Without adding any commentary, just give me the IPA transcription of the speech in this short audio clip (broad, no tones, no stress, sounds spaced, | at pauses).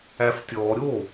æ f tʲ ɔː ɾʲ o